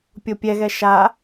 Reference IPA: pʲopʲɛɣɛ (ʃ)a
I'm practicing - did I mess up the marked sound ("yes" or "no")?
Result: no